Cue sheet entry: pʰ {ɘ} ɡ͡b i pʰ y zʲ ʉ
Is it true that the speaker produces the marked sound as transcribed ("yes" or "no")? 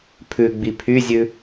no